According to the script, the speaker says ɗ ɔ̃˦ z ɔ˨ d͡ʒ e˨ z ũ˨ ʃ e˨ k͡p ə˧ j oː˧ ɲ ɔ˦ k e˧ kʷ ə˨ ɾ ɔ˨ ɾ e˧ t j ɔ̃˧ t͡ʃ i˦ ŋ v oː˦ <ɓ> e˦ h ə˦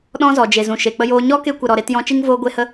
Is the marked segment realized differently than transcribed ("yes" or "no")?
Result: yes